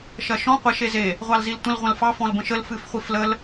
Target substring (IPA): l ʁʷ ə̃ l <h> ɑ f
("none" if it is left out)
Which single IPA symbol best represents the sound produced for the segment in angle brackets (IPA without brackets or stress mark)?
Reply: f